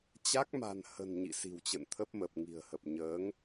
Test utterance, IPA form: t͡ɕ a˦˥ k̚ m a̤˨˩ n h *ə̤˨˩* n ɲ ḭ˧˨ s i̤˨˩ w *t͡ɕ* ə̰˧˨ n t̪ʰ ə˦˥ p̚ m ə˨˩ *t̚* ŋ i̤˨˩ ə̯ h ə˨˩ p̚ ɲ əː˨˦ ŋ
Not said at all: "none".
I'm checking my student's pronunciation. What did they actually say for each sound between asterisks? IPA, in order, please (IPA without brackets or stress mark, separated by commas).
ə̤˨˩, t͡ɕ, p̚